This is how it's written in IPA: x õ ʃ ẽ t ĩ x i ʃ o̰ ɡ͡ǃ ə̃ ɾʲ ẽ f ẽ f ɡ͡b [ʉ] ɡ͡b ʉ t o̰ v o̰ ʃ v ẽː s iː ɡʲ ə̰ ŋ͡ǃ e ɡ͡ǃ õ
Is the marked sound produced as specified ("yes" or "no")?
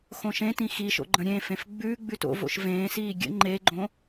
yes